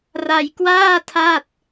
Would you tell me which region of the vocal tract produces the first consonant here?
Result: tongue tip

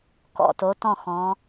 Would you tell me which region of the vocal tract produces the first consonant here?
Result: velum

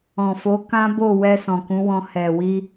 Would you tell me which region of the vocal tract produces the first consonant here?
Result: lips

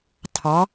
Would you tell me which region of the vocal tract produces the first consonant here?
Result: tongue tip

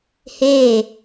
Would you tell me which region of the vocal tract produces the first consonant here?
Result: throat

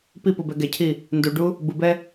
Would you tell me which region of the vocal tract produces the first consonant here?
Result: lips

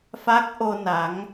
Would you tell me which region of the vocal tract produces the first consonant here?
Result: lips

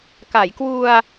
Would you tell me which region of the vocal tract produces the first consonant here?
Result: velum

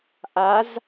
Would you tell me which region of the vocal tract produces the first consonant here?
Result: throat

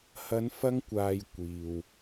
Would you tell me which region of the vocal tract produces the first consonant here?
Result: throat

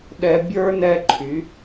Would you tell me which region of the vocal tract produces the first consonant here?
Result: tongue tip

